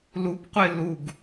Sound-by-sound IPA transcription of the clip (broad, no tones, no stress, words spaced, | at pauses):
lupqʷɪ luɡ